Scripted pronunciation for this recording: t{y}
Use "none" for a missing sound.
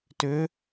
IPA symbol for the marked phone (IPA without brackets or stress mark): ʏ